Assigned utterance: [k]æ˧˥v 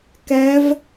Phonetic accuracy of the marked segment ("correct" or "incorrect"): correct